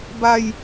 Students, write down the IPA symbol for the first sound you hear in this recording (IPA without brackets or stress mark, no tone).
b